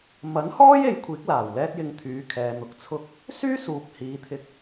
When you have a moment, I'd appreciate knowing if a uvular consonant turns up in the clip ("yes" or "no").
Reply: no